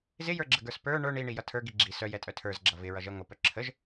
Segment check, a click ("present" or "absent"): present